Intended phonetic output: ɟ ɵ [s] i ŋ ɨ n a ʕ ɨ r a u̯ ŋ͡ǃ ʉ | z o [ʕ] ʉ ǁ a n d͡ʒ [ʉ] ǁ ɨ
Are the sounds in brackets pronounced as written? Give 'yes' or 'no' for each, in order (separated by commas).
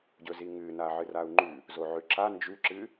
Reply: no, yes, yes